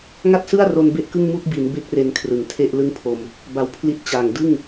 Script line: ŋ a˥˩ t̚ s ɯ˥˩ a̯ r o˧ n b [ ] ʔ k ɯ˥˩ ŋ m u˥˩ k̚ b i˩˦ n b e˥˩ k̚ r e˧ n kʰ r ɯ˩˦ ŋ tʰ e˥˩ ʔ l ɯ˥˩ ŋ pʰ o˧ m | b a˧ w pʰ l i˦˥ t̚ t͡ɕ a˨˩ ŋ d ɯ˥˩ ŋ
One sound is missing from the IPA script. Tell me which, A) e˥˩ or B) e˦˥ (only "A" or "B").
A